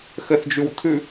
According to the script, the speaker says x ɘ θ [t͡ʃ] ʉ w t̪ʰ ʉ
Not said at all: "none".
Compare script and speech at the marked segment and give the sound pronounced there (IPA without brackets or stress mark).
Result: d͡ʒ